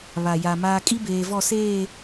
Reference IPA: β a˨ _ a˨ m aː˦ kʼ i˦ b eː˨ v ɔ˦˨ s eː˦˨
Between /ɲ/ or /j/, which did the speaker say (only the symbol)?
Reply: j